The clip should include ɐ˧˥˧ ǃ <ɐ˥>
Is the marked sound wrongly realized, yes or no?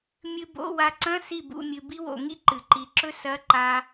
yes